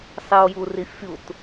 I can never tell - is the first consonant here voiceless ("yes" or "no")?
yes